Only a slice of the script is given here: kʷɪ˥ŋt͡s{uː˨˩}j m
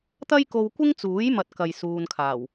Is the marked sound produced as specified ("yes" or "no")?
no